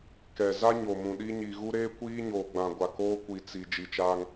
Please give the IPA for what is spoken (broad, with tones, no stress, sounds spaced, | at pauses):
k ɛ˨ z a˦ ɲ o˨ m ũ˨ ɗ i˦ ɲ i˨ ɣ u˦ ɾ eː˦ kʷ iː˦ ɲ oː˨ ɡ͡b ã˨ ɡʷ a˨ k oː˦ kʷ i˨ t͡s i˨ d͡ʒ i˨ t͡ʃ aː˦ ŋ